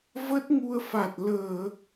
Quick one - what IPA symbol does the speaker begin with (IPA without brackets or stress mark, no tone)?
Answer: v